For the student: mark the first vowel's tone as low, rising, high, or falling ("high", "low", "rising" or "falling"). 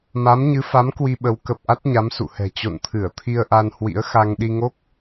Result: rising